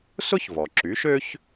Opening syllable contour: high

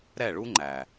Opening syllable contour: falling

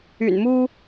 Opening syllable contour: low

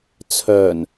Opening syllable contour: low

